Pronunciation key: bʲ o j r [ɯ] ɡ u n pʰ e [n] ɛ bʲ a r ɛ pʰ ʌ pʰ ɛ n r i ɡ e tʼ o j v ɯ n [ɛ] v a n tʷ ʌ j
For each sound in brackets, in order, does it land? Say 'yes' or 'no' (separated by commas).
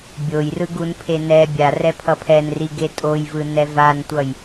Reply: yes, yes, yes